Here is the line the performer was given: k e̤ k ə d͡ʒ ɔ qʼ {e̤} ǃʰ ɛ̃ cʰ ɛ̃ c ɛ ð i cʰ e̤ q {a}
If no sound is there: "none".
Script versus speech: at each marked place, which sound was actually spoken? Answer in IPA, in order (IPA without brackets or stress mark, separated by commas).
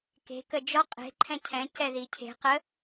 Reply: e̤, ə